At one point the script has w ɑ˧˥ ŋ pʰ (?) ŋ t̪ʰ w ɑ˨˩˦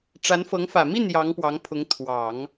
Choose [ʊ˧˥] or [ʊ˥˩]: ʊ˧˥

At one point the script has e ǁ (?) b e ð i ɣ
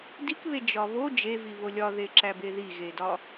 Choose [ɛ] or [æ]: æ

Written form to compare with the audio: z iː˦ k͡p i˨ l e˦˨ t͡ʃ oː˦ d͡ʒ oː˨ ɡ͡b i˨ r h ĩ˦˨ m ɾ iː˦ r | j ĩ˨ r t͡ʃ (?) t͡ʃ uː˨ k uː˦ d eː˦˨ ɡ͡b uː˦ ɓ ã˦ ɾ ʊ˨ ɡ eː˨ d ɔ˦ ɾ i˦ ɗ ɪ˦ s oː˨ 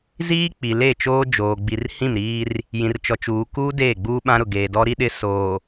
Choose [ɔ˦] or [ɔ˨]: ɔ˨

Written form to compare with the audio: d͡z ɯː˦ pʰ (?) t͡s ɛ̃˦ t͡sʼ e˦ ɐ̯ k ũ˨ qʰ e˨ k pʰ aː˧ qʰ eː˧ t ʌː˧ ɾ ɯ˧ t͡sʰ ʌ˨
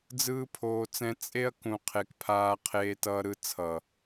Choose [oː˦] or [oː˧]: oː˧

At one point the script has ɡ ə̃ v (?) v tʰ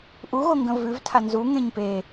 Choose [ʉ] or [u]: ʉ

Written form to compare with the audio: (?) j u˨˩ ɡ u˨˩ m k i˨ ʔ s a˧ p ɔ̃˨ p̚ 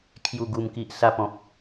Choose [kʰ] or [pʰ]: kʰ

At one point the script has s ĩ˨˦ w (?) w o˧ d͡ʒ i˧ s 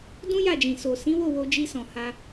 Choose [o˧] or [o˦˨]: o˦˨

